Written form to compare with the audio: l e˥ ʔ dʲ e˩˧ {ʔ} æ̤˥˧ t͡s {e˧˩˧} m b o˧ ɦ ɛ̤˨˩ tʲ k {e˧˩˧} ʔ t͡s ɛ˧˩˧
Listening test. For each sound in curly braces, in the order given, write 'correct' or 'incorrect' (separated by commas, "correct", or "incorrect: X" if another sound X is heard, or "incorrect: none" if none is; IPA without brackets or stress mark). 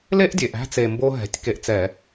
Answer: correct, incorrect: e˨˩, incorrect: e˧